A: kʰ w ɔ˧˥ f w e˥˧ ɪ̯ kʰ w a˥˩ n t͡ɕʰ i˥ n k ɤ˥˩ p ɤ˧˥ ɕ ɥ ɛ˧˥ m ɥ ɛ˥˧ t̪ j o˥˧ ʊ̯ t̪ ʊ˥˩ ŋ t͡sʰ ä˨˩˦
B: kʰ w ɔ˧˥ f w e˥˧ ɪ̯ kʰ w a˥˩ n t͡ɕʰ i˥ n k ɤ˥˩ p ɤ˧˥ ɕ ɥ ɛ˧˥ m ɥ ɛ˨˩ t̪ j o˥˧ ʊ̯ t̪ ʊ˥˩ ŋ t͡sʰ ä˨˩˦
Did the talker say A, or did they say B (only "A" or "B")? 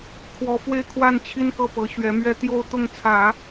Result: A